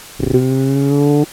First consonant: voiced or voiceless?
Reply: voiced